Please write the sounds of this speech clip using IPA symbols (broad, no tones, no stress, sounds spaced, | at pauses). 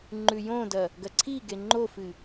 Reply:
ŋ͡ǃ ʉ j õ d ɐ | ɡ ɐ ǀʰ i ɡ e ŋ͡ǃ o f ɨ